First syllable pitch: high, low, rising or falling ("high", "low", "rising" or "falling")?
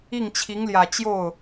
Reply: falling